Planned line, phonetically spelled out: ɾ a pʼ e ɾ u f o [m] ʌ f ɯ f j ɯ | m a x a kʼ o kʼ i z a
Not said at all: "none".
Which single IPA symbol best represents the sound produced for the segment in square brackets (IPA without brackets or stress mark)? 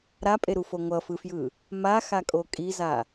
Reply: ŋʷ